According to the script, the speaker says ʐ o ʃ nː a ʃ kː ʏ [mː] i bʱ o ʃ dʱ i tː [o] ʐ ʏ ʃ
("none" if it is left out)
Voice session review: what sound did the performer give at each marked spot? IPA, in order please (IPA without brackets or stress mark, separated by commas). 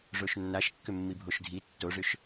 mː, o